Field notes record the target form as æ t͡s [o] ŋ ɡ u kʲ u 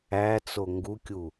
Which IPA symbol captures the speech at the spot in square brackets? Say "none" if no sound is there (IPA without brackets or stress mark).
o